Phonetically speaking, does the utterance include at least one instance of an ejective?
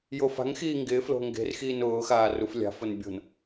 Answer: no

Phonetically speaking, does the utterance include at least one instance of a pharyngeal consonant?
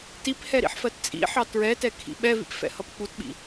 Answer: yes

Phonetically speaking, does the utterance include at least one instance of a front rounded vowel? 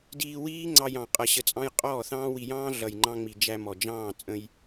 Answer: no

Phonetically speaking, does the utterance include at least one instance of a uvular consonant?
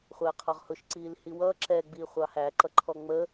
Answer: yes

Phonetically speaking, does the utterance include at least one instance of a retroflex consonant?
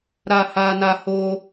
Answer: no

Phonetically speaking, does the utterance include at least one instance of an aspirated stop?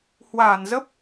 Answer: no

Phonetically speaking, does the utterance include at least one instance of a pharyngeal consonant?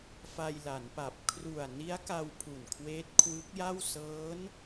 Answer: no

